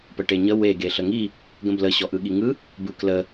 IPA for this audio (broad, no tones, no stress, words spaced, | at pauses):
pəʈeɲə we ɡeɬəŋi | ɡə̃blə ɕɔʔɯɠiŋɯ | bɯklə